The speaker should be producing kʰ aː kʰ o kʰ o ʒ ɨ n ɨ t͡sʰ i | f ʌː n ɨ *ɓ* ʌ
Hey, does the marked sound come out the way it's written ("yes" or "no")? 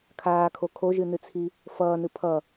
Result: no